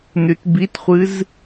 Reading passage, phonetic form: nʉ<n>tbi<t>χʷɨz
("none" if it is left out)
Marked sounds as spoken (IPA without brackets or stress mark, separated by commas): none, t